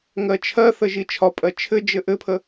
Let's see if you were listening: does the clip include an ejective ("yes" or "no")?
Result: yes